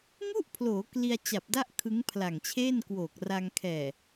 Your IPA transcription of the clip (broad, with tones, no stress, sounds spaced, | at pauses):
ŋ u˥˩ ʔ pʰ l oː˩˦ k l i˧ a̯ t͡ɕ a˨˩ p̚ d a˥˩ ʔ kʰ ɯ˦˥ ŋ pʰ l a˨˩ ŋ t͡ɕʰ eː˥˩ n k w oː˨˩ k̚ r a˧ ŋ kʰ ɛː˨˩